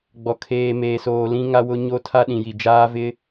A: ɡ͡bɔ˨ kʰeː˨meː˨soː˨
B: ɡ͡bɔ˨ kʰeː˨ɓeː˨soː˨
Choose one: A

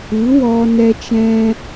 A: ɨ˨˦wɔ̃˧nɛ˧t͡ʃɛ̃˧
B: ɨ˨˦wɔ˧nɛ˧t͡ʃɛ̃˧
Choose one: B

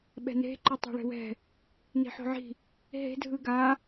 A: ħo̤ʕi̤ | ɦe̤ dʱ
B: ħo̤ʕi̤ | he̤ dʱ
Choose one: A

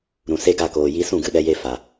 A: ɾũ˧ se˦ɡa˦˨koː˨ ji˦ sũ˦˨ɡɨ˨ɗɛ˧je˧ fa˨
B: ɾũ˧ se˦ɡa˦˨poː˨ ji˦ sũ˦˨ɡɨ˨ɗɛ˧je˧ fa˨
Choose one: A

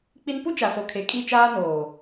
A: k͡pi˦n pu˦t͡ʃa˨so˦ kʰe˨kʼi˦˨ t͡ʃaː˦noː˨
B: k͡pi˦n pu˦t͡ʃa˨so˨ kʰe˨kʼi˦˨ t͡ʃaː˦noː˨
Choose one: B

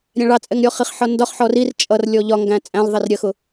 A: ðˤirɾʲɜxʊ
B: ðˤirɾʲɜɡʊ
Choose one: A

